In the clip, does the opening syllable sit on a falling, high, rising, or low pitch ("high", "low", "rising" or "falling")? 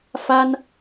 high